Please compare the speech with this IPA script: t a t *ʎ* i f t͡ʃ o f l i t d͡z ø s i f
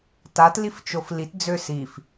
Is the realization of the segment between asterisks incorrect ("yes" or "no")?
yes